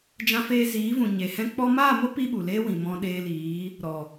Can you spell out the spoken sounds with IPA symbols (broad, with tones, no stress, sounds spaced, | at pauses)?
d͡ʒ ã˧ f eː˧ z iː˨˦ v ũ˨ ɲ e˨ h ɛ̃˦ k͡p ɔ˧ m aː˦˨ m o˦ p i˦ ɓ u˨ l eː˦ w ĩ˨ m ɔ̃˧ ɗ eː˧ l iː˨˦ | ɾ ɔ˨